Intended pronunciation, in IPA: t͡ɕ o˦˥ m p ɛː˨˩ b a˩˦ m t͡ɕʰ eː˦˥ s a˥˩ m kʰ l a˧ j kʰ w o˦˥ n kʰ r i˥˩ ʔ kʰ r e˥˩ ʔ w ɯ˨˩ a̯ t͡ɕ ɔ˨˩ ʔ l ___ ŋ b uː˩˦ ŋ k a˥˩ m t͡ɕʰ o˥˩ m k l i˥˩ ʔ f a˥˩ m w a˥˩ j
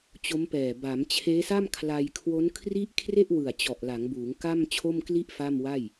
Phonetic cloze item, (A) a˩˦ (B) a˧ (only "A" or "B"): A